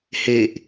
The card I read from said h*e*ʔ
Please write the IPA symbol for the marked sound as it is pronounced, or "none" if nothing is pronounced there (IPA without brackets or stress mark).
e